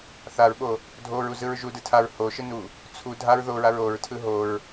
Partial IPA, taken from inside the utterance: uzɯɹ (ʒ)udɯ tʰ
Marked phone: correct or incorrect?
correct